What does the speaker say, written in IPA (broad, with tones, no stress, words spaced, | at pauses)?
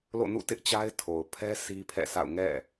lo̰˦˨nṵ˦˨tɪ˦ʔt͡ɕa˦ɪ̯ tʰo˨ʊ̯pʰɛ˦ si˦pʰɛ̰˦˨sa̰˦˨ʊ̯ ŋɛ̰˦˨